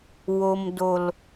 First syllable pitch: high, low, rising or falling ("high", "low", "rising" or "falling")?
low